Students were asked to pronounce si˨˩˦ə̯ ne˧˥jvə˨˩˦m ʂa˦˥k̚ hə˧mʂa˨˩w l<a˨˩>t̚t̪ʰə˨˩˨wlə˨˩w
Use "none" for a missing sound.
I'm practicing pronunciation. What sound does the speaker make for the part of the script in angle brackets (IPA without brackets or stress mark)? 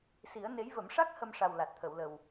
a˨˩